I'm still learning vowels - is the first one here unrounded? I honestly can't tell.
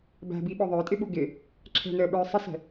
yes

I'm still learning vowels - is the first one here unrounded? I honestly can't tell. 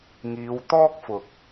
yes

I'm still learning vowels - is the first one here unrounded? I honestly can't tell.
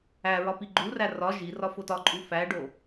yes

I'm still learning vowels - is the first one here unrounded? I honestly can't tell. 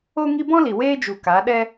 no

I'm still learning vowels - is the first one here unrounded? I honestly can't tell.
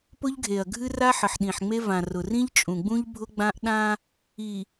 no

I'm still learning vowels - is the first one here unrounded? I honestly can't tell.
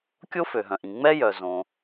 no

